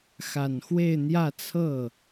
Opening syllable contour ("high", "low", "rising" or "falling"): low